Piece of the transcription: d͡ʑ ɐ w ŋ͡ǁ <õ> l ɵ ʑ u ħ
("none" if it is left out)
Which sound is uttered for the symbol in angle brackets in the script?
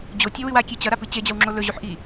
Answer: o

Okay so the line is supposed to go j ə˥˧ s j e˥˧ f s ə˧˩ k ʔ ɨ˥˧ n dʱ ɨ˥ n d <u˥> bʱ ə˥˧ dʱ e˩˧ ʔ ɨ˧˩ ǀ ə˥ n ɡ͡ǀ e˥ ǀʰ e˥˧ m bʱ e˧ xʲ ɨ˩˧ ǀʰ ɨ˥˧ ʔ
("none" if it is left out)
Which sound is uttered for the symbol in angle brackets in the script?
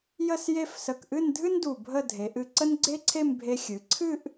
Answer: u˧˩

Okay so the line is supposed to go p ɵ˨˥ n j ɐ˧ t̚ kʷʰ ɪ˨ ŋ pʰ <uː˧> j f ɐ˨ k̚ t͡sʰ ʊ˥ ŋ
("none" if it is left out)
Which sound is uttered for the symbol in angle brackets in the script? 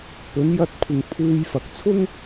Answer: uː˧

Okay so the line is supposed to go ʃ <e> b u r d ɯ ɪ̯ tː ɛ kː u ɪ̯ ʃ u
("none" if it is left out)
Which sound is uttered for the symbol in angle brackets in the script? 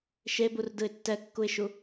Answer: e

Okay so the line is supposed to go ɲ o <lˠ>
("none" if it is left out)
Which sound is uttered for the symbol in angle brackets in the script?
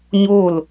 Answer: l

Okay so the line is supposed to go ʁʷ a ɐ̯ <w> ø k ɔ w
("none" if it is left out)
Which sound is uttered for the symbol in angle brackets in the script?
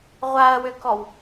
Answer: w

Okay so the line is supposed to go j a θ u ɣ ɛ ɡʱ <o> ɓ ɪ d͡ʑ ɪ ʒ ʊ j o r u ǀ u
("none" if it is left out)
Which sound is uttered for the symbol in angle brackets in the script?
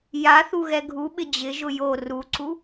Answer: u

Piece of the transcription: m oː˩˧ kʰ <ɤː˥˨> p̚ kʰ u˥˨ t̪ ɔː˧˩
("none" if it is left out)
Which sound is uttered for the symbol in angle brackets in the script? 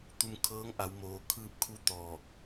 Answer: ɯː˥˨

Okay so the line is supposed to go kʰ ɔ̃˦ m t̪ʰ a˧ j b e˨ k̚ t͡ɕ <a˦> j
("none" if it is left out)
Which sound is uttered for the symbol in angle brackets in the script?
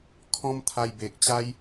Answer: a˦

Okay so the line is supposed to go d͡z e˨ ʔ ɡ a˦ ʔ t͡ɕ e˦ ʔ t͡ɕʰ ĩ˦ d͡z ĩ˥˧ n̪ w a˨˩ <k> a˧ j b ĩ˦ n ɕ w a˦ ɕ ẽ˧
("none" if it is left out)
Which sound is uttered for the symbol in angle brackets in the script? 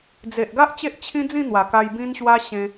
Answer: k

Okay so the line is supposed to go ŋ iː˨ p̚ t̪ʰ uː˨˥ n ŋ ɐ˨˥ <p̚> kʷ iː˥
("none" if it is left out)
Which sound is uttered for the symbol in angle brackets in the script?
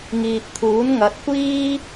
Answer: t̚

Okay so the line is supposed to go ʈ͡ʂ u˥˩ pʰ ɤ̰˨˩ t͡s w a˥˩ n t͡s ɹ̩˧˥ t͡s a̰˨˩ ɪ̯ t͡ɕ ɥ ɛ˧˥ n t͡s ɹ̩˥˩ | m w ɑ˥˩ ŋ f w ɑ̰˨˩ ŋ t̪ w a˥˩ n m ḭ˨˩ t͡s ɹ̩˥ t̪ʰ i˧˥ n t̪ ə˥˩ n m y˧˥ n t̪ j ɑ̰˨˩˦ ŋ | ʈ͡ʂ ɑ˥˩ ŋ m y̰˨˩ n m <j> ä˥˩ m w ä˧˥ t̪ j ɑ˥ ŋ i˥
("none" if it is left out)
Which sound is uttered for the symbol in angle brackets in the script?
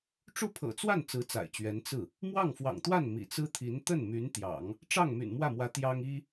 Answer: w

